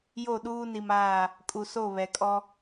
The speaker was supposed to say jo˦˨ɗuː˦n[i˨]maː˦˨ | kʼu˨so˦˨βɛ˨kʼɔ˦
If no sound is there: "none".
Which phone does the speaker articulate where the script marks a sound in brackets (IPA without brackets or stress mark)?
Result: i˨